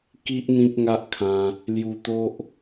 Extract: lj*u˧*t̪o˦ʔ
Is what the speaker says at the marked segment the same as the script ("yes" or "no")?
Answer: yes